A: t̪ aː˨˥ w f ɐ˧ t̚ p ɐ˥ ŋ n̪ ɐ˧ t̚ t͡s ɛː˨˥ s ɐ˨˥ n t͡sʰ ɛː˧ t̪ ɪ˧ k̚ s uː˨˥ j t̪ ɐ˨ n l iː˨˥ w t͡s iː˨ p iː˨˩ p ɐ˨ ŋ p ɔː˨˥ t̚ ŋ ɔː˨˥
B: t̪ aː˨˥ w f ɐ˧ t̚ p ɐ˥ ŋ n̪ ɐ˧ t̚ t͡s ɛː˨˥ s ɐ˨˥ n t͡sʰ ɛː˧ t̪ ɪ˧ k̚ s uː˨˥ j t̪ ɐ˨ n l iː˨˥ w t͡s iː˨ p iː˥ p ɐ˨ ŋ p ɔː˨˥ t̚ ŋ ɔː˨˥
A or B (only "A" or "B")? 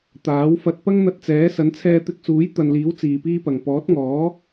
B